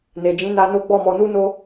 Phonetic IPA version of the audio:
ne˨d͡ʒĩ˨˦na˧ no˦ɡ͡bɔ˦˨mɔ˧ nu˦no˦

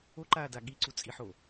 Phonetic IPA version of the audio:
oǃaːda ɠiǀut͡sʼiħo

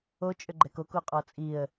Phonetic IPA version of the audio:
ot͡ʃʼʏɡ͡ǃɛk okoqʼɔ t͡sʼiə̯

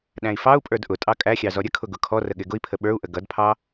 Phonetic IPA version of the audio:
ɗæ̃i̯fɑu̯pʼə˞d ʔʊtʼɑ kʼæxʲɑ zɔɾʲəkʰʊ ɡʊkʰɔrə ɠɪɡʊi̯pʰə ɓə˞u̯ʔə ɡʌdpʰɑ

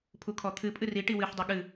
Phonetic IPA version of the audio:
pʰukʰɔt̪ʰɨpʼɨ ri ʈiwɨħdˤɨ ɠɨ

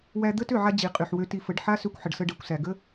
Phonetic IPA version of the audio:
wæ˧d̪ə˦tø˦˨ʕa˧ d͡ʑi˨qʼy˨ħwø˧ ti˧fə˨˦ɖ ħa˦sø˧kʷħə˨ɖsə˧ ɖɛ˨kʷsæ˨ ɡə˦

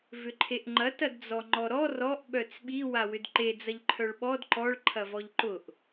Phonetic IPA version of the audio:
vʏǃʰeʔŋ͡ǃɐ tɐdd͡zɔŋ͡ǃɔɾɔ rɔʔ ɓœt͡sɓi wawʏdǃe d͡zɐʎǃʰœɭɓɔd ǃɔɭ ǃʰɐvɔʎǃʊʔ

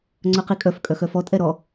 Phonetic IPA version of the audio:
ŋ͡ǀœqikʼœf kʼœxœfɔ tʼɛɾɔ

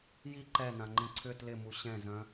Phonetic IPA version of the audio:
ji ǃɛnãŋ͡ǃĩ ǀʰʏ tlɪmu ɕɛ̃zœ̃

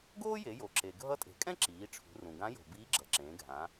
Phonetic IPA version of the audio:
ɡoː˥je˩˧jo˩ǁe˩ ɡʱʌ˧˥tʼe̤˩kʼɛ̃˥ ǁiː˩˧ʈ͡ʂʰṳ˩˧rũ˩ ɡã˧˥jo̤˩ biː˧˥ɡ͡ǁʌ˩˧ǁẽː˩˧ɡʱã˩˧

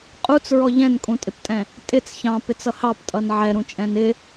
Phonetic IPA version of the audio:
qʼut͡sɹɔ ʎɛ̃nkʼũtʼɪptʼɛ̃ | tʼɪt͡s çɑ̃pɪt͡sʌ hɑptʼʌn ʕɛɾũt͡ʃʼɛ̃n ɪ

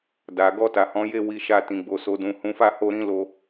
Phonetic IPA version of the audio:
da˨ ɡɔ˧ta˨hɔ̃˨˦ je˦˨ wi˧ ʃa˧ tĩ˨ɡ͡bo˨so˨dũ˨ hũ˨˦fa˦˨ho˧ ɾĩ˦lo˧

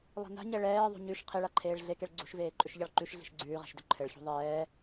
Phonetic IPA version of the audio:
lˠi̤na̤ɲɛ ɭɛːðˤṳ ɲʉʃ qʰeɭaǃʰeːɭ ɮekeɭ ɡ͡ǀṳʃveː ǃʼʏʃʎɑɭǃʉʃ ɮi̤ʃɡ͡ǀʉːʁɛ̤ʃdʏ ǃʰɘɭçṳ ðˤɛː

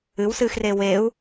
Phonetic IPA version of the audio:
ɨwsɨːxreː weu̯

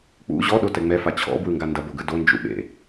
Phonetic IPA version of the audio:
k͡pṵ ʑɔɗotɛ ŋ͡mɛfa t͡ɕʰɔ̰bwɯŋɡa ndɐboɡɯ dond͡ʒṵɓḛ

